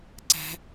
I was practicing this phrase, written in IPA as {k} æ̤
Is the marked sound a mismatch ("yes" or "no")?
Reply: yes